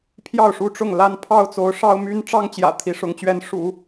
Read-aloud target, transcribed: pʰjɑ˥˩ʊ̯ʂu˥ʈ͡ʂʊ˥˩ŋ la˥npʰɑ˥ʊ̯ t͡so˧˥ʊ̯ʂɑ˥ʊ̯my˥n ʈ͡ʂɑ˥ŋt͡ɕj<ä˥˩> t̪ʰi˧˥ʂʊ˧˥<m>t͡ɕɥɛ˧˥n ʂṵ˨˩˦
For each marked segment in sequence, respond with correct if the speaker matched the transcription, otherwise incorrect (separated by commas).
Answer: incorrect, incorrect